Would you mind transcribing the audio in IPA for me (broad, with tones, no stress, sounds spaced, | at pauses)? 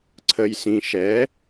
ǀʰ ə˧ j s ĩ˧ ʃ ɛ˧˥